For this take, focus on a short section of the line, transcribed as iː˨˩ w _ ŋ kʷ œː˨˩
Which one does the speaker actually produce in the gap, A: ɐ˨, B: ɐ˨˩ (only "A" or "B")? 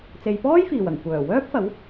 B